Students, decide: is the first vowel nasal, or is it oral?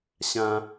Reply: nasal